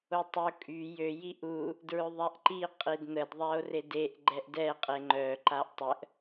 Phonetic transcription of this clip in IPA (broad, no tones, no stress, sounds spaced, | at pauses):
o tˤ ə o̯ kʼ y j ø j i ʔ u | d ɹ ø ðˤ a ʔ ǃ i qʼ i d n̪ ə d ðˤ a o̯ r e d e ʔ ɡ͡ǃ ɛ ʔ d ɛ qʼ e ŋ͡ǃ œ ǃ a ʔ tˤ ə ʔ